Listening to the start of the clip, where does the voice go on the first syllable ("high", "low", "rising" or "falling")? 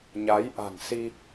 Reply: rising